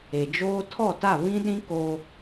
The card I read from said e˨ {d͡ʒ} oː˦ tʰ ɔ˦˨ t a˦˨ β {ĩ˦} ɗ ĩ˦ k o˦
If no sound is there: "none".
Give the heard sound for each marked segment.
d͡ʒ, ĩ˦

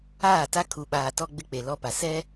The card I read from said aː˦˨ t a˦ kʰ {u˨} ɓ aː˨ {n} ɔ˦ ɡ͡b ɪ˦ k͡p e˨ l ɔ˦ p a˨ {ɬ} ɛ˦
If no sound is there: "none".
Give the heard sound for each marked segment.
u˨, t, s

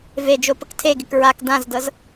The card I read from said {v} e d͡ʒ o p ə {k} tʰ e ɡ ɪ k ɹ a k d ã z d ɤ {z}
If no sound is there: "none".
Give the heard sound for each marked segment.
v, k, z

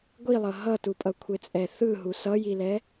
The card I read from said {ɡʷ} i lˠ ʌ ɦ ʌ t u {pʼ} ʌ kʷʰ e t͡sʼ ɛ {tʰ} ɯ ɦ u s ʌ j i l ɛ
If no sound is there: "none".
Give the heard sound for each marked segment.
ɡʷ, pʼ, θ

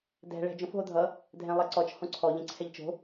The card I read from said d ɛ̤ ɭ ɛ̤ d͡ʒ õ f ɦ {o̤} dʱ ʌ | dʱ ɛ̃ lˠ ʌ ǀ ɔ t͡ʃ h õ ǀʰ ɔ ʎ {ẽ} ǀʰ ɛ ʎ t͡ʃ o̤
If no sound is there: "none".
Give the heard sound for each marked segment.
o, ɛ̃

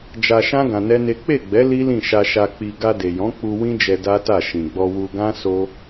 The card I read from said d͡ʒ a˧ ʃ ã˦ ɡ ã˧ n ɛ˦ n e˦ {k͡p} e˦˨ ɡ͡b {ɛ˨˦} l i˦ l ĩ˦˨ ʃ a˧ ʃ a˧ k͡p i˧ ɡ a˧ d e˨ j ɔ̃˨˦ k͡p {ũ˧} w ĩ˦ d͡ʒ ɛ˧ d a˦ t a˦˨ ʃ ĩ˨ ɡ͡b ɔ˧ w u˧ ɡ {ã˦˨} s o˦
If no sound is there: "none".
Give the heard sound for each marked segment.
k͡p, ɛ˨˦, u˧, ã˦

